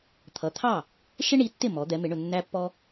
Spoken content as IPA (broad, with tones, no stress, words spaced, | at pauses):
t̪ʰʌ˩˥t̪ʰɑ˥˩ | ʃɪ˥ɳi˩˥tːɪ˥˩ mɔ˩˥d̪ɛ˩˥mɪ˩˥ɳʊ˨ nːæ˥pːɔ˥